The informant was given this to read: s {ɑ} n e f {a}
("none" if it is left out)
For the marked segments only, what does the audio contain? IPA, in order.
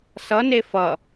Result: ʌ, ʌ

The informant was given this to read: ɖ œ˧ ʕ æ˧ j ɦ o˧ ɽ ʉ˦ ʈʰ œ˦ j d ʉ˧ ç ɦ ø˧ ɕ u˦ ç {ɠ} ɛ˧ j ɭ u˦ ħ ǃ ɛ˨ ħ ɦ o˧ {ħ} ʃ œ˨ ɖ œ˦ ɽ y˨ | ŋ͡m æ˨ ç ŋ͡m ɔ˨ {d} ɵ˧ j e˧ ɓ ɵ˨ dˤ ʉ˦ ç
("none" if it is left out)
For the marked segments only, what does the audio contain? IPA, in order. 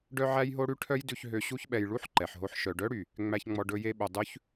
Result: ɓ, ħ, ɖ

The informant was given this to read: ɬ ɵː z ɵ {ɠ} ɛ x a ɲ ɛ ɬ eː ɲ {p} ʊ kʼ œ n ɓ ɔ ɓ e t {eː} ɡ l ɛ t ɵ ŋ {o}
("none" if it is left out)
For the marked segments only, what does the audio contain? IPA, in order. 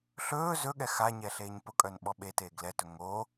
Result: ɠ, p, eː, o

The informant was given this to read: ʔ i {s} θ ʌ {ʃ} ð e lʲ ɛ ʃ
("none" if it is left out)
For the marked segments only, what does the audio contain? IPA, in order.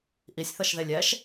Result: sʲ, ʃ

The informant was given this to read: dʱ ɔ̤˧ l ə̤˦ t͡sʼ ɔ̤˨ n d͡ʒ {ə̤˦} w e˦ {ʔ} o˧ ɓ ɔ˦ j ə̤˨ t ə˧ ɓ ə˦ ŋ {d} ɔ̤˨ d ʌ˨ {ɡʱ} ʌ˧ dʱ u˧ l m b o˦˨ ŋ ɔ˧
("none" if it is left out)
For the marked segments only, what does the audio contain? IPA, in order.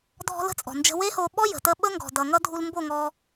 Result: ə̤˧, h, ɡ, ŋ

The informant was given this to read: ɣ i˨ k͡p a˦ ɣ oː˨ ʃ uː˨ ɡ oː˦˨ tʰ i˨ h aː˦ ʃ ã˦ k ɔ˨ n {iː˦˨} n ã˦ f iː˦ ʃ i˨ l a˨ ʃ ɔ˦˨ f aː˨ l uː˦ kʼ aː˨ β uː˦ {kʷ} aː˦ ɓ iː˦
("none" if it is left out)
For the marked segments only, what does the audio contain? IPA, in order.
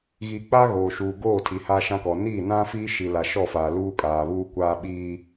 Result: iː˦˨, kʷ

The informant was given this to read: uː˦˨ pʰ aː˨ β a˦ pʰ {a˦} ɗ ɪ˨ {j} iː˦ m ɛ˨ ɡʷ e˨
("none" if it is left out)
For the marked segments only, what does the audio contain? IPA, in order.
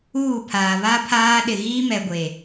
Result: aː˦, ɣ

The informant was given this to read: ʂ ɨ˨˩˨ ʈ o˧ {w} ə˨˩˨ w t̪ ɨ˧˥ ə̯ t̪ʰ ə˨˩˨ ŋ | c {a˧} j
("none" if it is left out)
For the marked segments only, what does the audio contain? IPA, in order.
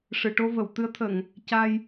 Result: v, a˧

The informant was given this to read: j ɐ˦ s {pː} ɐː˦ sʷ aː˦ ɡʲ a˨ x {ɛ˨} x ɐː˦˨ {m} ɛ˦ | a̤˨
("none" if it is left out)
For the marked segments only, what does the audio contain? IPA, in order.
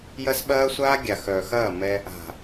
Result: ɓ, œ˨, m

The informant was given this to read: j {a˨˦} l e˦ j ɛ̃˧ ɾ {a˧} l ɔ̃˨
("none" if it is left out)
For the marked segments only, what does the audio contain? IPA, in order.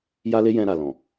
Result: a˦, a˨

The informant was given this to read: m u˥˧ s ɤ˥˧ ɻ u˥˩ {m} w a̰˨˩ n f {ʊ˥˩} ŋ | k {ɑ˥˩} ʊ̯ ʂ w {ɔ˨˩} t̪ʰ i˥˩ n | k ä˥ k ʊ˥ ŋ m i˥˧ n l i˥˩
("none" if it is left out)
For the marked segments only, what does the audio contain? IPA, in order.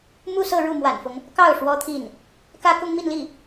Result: m, ʊ˦, ɑ˥˩, ɔ˥

